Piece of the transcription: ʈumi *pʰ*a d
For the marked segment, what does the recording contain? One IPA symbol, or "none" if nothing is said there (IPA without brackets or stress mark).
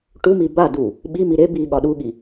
b